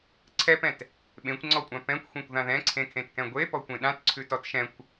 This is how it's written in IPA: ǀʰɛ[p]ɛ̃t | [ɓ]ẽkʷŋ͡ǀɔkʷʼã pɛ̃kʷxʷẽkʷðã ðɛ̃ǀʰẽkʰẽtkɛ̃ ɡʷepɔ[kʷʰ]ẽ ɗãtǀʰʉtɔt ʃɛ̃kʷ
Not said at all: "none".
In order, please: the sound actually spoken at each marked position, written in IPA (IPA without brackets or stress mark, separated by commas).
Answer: p, ɓ, kʷ